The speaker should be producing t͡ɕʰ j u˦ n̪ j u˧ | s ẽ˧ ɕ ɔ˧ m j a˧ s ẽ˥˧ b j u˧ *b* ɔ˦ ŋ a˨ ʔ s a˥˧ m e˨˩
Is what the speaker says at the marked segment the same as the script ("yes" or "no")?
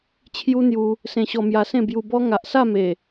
yes